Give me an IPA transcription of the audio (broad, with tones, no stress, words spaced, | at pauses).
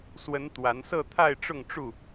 swə˨˦n t̪wa˨˦n sɤ˥˨t̪ʰa˥˨ɪ̯ʈ͡ʂʊ˥˨ŋʈ͡ʂu˥˨